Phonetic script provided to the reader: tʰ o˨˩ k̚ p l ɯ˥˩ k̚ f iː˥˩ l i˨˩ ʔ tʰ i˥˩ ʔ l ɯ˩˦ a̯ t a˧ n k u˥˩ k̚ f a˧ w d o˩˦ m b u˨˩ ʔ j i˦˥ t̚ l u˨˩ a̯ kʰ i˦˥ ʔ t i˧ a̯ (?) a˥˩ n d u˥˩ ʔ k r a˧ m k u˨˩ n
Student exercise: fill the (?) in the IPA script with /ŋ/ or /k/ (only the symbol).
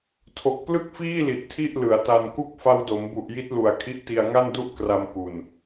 ŋ